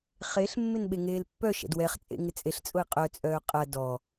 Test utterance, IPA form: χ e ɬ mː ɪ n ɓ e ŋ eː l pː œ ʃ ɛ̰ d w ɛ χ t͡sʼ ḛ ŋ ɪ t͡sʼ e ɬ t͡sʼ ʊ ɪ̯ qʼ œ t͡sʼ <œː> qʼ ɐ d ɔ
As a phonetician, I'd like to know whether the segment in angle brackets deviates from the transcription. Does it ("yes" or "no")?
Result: no